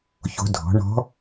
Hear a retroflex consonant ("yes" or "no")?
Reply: yes